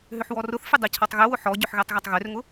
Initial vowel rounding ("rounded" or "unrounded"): rounded